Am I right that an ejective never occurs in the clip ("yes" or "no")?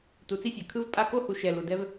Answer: no